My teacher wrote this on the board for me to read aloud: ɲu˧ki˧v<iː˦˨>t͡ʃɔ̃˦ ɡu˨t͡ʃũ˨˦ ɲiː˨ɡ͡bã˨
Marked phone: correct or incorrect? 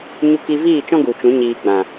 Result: correct